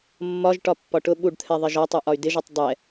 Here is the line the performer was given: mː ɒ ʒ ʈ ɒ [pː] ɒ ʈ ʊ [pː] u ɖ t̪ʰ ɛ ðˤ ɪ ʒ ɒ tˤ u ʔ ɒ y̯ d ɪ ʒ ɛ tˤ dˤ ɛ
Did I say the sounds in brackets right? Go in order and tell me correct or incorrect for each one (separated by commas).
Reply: correct, incorrect